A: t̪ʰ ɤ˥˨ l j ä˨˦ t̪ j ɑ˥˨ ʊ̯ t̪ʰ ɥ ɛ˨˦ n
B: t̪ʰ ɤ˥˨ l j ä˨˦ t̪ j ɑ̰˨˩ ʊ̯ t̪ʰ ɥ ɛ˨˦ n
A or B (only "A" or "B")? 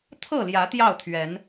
A